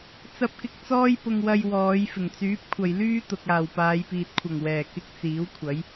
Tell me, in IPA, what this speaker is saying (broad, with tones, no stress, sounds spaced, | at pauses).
t͡s ɐ˧ p̚ k ɪ˧ k̚ t͡s ɔː˥ j p ʊ˧ ŋ w ɐ˧ j w ɔː˨˧ j f ɪ˨˩ ŋ t͡s yː˨˥ p̚ kʷʰ ɐ˨ j l yː˥ t̪ ʊ˨ k̚ aː˨˩ w p aː˨˧ j p iː˨ t̚ kʷʰ ɐ˨˩ ŋ w ɛː˨˩ k ɪ˧ k̚ t͡s iː˨˥ w kʷʰ ɐ˨˥ j